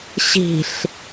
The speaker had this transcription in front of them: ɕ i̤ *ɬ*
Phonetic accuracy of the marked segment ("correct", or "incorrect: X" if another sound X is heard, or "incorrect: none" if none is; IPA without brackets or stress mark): correct